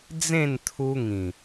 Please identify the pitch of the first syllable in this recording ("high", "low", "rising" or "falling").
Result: falling